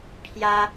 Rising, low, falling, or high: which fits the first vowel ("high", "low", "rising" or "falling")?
high